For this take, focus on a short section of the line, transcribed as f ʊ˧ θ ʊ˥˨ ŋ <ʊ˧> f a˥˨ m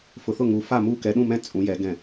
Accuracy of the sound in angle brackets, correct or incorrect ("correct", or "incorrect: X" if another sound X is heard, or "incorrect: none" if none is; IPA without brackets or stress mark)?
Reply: incorrect: u˧